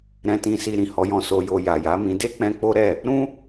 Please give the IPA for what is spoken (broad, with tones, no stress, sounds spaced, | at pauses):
ɾ ɛ̃˧ t ĩ˧ s i˧ ɾ ĩ˨ h ɔ˨˦ j ɔ̃˧ s o˧ j o˧ j a˨ j a˨˦ m ĩ˧ d e˦ k͡p ɛ̃˧ k͡p o˦ ɾ ɛ˦˨ | ɾ ũ˦